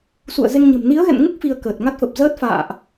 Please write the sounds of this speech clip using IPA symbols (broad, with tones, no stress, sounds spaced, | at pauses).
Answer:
s ṵ˧˨ ə̯ z e˧ ŋ ɲ ə̤˨˩ m n i˨˦ ə̯ ɣ ɛ̰˧˨ n ŋ u˦˥ k̚ f i˧ ə̯ k əː˨˩ t̚ ŋ a˦˥ t̚ f ə˨˩ p̚ z əː˦˥ t̚ f a̰ː˧˨ ʔ